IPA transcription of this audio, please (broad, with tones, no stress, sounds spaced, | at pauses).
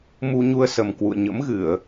m u˧ ɲ u˧ ə̯ s ə˨˩ m k w ṵ˧˨ ə̯ ɲ ə̰˧˥ m ɣ ɨ˧˩˨ ə̯